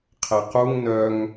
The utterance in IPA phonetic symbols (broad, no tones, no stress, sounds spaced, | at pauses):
qʰ ɛ q u ŋ n œ ŋ